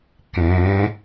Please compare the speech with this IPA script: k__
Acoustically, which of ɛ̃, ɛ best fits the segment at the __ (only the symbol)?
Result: ɛ̃